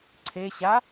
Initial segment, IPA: ǀʰ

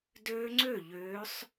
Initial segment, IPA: d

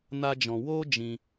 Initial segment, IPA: n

